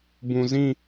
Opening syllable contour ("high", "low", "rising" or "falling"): low